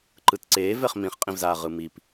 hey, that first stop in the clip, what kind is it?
click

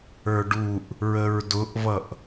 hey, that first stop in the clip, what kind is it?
plain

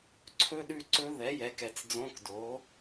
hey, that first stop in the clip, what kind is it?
click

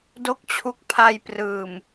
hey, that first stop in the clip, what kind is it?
plain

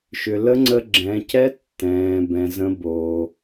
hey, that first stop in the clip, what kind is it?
click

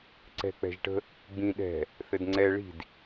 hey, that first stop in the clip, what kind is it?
click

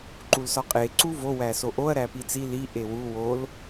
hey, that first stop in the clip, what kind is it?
click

